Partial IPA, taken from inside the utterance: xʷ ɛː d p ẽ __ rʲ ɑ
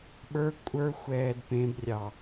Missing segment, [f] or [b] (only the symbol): b